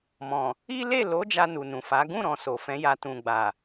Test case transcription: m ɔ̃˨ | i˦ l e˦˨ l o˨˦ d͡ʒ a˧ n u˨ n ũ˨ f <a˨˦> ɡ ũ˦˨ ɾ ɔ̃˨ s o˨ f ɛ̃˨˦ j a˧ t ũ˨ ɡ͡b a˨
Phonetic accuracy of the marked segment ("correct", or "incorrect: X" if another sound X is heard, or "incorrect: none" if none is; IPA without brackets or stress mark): correct